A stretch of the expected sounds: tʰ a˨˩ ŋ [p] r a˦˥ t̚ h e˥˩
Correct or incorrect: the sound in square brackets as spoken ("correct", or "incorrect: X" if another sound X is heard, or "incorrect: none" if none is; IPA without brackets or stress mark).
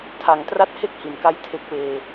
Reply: incorrect: t